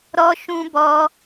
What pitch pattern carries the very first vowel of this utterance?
high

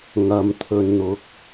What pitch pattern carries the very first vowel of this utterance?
low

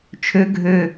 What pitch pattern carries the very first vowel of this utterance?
high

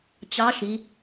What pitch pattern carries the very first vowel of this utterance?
rising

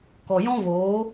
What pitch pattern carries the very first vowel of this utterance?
low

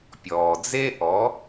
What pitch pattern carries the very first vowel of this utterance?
low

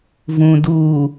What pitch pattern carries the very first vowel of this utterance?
low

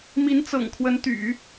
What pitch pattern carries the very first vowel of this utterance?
rising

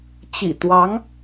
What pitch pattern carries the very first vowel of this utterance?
low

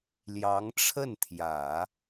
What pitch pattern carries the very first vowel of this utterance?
rising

